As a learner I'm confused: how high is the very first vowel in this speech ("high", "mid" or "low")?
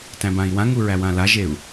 low